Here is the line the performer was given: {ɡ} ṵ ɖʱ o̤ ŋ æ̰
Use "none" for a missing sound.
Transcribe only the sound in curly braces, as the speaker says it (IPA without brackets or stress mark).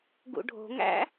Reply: ɡ